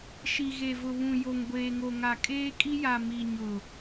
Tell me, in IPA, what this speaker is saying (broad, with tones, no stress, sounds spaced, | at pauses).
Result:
ʃ i˨ ɣ e˨ v ʊ˨ β ũ˨ j o˨ ŋ ɡʷ eː˨ ŋ o˨ ŋ a˨ kʼ eː˦ kʼ i˦ j a˨ m i˨ ɲ ʊ˨